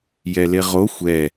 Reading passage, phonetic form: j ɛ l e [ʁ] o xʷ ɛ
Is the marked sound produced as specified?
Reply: yes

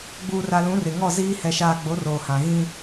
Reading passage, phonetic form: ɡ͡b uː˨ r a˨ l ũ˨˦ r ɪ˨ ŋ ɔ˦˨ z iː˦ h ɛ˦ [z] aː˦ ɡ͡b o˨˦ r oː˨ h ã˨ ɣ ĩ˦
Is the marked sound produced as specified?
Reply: no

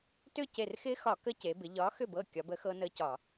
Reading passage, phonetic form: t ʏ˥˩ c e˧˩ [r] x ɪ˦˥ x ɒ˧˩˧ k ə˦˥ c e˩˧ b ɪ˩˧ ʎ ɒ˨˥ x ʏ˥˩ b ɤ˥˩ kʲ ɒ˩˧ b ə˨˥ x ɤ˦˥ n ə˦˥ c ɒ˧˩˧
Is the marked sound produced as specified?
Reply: yes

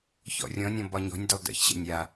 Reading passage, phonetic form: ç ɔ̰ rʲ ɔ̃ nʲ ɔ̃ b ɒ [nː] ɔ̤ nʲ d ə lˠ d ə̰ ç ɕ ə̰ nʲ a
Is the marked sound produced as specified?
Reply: no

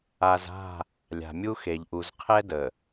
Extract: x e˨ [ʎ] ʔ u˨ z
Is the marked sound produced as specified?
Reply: yes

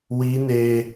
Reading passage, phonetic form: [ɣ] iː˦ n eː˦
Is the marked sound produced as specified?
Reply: no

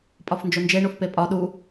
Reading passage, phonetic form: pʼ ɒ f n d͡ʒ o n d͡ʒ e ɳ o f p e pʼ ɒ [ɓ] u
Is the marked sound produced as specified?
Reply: no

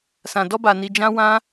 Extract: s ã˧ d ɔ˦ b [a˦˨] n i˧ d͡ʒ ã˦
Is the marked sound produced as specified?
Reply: no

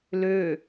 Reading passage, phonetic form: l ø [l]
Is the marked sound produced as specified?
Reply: no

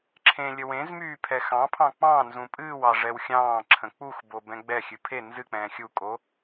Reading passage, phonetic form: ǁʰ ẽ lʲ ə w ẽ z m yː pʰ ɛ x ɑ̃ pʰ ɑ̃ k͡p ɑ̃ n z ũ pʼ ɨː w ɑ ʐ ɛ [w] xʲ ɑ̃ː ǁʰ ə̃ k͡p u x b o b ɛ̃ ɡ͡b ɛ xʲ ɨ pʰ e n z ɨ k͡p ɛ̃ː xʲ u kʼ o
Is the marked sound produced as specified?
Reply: yes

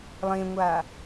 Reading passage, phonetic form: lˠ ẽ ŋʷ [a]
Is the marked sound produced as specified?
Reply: yes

